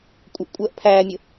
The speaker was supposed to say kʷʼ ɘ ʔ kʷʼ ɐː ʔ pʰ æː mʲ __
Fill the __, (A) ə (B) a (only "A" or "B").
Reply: A